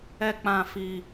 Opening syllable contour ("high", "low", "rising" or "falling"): high